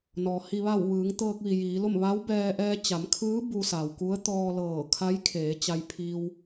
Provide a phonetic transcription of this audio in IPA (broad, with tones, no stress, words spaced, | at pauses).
nɔː˩ hi˩ʋa˧˩w ʋɯː˩˧ŋt̪ɤː˧k̚ʋi˩ jiː˩˧lo˥˨m ʋa˧˥wbɛː˧ ʔɛː˧t͡ɕa˩˧mkʰɯː˧˥ bu˧sa˩wku˧˥ə̯ t̪ɔː˧lɤː˧˩kʰa˧˥jkʰeː˩˧ t͡ɕa˧jpʰi˧w